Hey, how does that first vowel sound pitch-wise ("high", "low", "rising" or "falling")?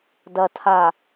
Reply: low